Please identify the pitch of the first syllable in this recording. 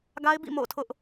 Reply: high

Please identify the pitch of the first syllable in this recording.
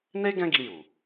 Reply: high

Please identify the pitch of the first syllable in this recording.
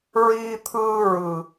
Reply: high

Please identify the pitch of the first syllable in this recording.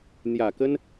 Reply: low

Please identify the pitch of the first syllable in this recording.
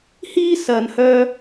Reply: high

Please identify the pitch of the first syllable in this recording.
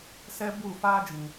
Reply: high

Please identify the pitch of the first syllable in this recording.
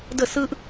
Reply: falling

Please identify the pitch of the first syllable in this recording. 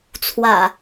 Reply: low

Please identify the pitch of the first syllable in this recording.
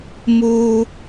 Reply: high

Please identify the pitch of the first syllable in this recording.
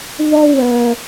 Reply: high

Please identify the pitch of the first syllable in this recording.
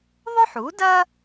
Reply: high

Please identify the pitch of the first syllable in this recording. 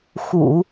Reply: low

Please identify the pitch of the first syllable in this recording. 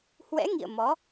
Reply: rising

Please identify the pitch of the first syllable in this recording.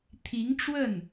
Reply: rising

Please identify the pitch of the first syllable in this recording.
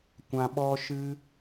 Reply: low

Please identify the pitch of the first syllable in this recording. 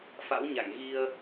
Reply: rising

